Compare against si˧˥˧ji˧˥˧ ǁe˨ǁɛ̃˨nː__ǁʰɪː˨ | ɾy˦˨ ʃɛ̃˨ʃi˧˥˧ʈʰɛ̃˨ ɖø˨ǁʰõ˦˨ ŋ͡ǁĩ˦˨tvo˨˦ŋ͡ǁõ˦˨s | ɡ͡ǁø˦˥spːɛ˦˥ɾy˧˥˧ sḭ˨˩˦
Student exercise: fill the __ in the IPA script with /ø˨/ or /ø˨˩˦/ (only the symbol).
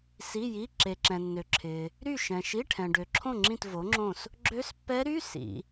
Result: ø˨